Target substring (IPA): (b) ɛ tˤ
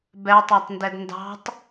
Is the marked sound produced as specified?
yes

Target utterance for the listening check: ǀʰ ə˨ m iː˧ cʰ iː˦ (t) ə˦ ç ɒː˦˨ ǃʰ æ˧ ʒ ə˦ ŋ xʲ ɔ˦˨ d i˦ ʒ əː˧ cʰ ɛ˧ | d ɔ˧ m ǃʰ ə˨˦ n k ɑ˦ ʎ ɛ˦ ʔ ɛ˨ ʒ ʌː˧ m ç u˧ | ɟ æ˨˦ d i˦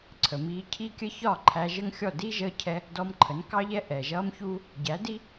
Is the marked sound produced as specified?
no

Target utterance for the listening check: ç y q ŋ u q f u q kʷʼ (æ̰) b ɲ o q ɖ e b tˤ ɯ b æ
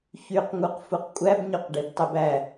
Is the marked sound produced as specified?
no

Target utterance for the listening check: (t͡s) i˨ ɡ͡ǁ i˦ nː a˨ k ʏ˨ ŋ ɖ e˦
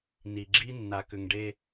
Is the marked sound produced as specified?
no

